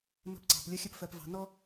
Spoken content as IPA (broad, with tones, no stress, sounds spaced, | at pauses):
m ə̤˦ p ǀ ɑ̤˨ p lʲ ʌ˦ xʲ ə˦ p f ɜ˨ p v ɑ̤˨ n ɔ˦